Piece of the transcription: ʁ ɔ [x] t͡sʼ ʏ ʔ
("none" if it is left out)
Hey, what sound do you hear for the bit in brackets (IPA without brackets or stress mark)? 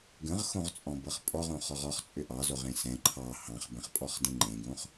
χ